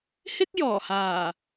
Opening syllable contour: high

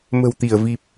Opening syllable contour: low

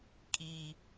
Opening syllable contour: high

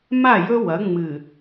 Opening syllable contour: falling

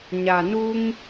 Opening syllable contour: low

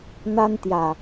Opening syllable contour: high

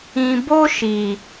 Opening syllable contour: low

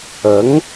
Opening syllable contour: rising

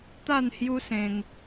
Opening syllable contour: falling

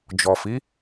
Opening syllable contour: low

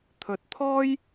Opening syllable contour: low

